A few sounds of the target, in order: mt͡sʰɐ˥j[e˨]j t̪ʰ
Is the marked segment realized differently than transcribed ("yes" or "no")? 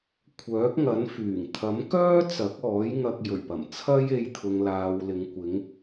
yes